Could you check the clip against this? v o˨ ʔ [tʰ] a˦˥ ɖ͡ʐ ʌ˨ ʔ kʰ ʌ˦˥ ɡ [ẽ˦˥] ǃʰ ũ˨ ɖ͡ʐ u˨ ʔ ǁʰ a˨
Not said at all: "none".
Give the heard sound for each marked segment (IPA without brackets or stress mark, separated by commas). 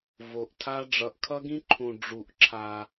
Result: tʰ, ĩ˦˥